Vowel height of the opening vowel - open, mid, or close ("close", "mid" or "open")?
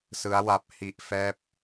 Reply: close